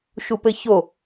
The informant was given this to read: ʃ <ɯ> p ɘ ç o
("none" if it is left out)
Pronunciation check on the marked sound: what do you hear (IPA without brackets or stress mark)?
u